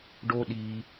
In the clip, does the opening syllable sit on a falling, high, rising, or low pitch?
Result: high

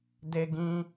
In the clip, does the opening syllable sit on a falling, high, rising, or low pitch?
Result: high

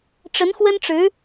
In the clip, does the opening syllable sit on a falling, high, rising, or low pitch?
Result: rising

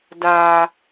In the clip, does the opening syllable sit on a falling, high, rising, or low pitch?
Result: low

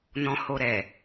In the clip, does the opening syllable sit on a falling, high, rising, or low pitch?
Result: low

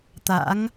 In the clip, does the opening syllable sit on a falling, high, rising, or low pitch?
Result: rising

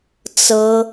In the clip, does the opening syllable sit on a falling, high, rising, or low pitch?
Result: high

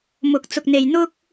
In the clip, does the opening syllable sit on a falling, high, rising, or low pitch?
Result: rising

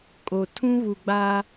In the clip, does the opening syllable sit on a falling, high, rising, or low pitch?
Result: low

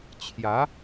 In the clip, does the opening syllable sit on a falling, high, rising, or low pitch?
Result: rising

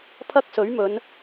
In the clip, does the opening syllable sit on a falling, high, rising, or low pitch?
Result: high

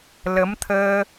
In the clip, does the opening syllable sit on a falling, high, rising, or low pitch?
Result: rising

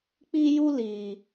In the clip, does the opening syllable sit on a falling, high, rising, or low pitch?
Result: high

